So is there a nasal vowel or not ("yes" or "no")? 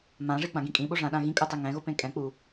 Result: yes